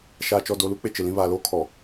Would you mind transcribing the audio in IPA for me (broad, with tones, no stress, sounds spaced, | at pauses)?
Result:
ʃ aː˨ t͡ʃ ɔ˨ d o˨ l u˦ k͡p e˨ t͡ʃ ɪ˨ l ĩ˦ β aː˨ l oː˦ kʰ ɔ˨